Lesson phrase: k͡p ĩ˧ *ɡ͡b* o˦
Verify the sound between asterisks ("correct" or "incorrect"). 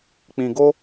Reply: incorrect